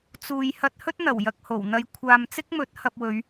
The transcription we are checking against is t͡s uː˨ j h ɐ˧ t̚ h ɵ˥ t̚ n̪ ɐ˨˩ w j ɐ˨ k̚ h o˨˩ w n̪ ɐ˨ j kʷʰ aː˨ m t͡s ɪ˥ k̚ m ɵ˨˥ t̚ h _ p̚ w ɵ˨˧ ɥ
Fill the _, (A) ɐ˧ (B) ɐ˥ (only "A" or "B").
A